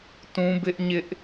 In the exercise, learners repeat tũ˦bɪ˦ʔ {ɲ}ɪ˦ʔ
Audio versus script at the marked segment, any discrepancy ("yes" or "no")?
no